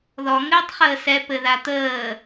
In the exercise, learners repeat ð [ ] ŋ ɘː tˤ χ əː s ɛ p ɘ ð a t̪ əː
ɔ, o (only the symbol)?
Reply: ɔ